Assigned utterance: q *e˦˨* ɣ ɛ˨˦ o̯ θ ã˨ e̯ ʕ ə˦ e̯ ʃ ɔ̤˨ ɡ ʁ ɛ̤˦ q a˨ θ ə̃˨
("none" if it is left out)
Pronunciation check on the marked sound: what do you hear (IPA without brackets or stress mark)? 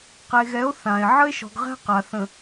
e˨